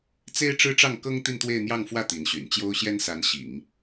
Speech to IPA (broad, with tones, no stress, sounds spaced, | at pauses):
t͡s e˥ ɪ̯ ʈ͡ʂ ɻ̩˥ ʈ͡ʂ ɑ˥˩ ŋ k ɤ˥ ŋ t̪ i˥˧ n t̪ w e˥˧ ɪ̯ n̪ j ɑ˥˧ ŋ f w ä˥˩ t̪ i˧˥ n ɕ y̰˨˩ n t͡ɕ j o˥ ʊ̯ ɕ j ɛ˥ n s a˧˥ n ɕ ḭ˨˩˦ ŋ